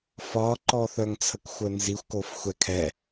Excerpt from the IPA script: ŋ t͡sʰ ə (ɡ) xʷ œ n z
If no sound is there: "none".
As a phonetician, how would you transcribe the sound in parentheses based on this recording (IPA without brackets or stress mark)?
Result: k